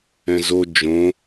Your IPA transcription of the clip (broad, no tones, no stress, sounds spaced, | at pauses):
ɛ̃ z o d͡ʒ õ